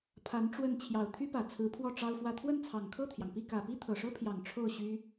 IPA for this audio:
pʰ a˧˥ n ʈ͡ʂ w ə˥˩ n t͡ɕʰ j ɑ˨˩ ʊ̯ t̪ʰ y˥ p ä˨˩ t͡sʰ ɹ̩˧˥ pʰ w ɔ˥˩ ʈ͡ʂ ɑ˥ ʊ̯ f w ä˥˧ t̪ʰ w ə˥˩ n t͡sʰ ɑ˨˩ ŋ kʰ ɤ˥˩ t̪ʰ j ɑ˩ ŋ p i˥˩ k ä˨˩ p i˥ t̪ʰ ɤ˨˩ ʂ ɤ˥ pʰ j ɑ˨˩ ŋ ʈ͡ʂʰ o˥˩ ʊ̯ ɕ y˥

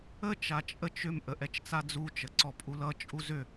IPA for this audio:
ə t͡ʃ a t͡ʃʼ ə t͡ʃ ʏ m ʔ ə ʔ ɛ t͡ʃ t͡s a d͡z u t͡ʃ ə ǀ ɔ pʼ u l ʌ t͡ʃʼ u z ʏ

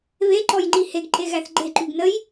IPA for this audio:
β e ǃ ɔ j ŋ͡ǃ i h e ɡ ǃ e ɣ æ θ ɡ͡ǃ e ǃ y ɡ n ə j

